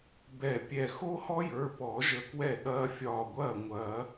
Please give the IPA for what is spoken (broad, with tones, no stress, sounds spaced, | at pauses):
b ɛ˧˩ pʲ ɛ˧˩ x o˥ h ɔ˥ j ə˞˩˧˩ p ɔ˨˩˦ ʒ ə˧˥ k w ɛ˥˩ ɠ ɐː˥ fʲ ɒː˧˩ ɡʷ ɐː˥˩ ŋʷ ɐː˨˩˦